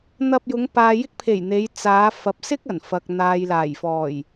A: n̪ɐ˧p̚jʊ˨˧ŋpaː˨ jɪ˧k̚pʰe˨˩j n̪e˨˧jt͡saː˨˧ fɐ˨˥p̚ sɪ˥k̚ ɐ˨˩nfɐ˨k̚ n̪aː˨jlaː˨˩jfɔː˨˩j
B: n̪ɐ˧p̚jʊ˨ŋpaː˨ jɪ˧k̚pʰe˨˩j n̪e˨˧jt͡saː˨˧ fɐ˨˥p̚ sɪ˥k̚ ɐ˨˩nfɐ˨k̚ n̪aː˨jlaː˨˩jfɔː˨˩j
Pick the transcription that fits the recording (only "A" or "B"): A